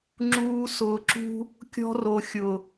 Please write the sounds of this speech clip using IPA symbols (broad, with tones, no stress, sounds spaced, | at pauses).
ŋ͡ǁ uː˧ s ʊː˨ ǁ ṳ˧ | kʲ ɔ̤˧ r o˨ xʲ ʊ˨